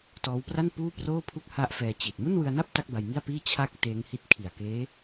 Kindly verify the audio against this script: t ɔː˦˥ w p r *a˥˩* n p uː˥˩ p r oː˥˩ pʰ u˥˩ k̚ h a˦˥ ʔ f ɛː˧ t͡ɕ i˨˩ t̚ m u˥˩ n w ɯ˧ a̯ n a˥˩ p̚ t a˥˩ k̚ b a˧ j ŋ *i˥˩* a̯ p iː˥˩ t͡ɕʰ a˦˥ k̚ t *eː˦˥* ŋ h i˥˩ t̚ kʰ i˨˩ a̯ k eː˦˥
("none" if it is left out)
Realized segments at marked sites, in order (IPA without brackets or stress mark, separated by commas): a˥˩, i˥˩, eː˦˥